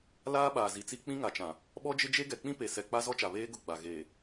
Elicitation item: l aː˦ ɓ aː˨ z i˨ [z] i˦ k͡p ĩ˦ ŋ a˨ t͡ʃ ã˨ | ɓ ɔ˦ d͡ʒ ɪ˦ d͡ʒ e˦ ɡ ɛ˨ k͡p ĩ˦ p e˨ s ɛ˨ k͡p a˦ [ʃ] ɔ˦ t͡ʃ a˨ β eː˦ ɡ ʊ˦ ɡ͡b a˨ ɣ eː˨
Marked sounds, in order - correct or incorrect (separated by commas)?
incorrect, incorrect